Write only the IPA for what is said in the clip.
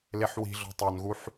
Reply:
l e ħ w i̤ ɮ ɔ̤ tˤ ʌ n ɣ u ħ

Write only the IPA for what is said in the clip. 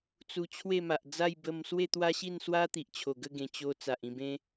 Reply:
t͡s u˧ t͡ɕʰ w e˥˧ m a˨ ʔ d͡z a˥˧ j b ə˧ m s w e˥˧ t̪ w a˦ ɕ i˥˧ n s w a˦ t̪ i˨ ʔ t͡ɕʰ o˨˩ ɡ ə˥˧ ɡ ẽ˨˩ t͡ɕ o˧ t͡s a˨ ʔ ĩ˥˧ b ẽ˦

